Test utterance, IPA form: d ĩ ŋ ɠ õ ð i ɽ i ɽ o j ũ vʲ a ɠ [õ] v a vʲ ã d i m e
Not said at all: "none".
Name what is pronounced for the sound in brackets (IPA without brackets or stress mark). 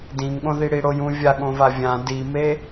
õ